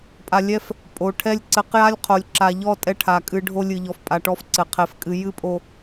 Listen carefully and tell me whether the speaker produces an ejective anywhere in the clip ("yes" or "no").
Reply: yes